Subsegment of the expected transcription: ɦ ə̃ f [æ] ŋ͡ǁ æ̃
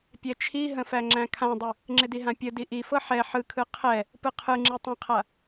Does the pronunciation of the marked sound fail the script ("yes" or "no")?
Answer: no